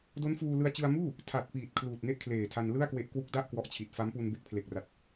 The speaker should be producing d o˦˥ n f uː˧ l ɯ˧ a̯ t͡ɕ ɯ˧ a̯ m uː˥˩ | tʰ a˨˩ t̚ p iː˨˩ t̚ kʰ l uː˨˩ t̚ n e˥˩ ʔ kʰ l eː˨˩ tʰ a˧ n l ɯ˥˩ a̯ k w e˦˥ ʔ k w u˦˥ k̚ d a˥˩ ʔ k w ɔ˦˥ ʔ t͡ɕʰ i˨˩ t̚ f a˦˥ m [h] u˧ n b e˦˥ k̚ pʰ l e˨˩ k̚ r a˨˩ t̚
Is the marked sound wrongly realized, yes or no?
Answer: yes